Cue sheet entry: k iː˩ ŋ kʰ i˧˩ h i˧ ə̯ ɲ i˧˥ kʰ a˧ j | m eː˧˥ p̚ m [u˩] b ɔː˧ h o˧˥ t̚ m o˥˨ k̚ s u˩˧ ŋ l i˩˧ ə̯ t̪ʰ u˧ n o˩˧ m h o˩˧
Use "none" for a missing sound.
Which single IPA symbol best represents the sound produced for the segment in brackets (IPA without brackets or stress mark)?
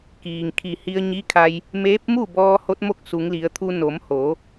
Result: u˥˨